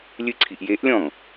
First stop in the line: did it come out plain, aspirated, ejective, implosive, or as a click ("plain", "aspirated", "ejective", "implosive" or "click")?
click